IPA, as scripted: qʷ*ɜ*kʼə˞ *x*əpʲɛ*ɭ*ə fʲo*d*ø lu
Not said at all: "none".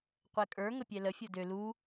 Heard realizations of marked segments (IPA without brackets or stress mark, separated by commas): ɛ, ŋ, l, d